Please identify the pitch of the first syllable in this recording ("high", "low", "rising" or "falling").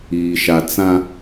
low